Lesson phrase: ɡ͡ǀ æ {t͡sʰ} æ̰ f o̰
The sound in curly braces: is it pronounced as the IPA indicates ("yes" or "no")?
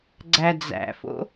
no